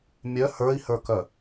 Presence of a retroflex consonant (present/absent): absent